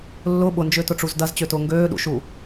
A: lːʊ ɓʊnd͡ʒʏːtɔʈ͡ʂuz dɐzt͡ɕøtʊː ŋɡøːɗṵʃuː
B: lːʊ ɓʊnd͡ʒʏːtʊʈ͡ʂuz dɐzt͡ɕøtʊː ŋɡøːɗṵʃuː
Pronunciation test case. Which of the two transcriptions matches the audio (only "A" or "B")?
B